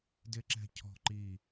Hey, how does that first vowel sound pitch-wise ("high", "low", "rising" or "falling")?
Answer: high